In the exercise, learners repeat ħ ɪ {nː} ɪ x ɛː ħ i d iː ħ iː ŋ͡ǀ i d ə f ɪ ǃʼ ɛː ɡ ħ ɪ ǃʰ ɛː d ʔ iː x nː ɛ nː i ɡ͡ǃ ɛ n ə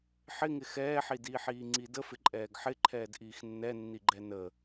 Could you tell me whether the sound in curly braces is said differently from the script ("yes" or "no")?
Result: yes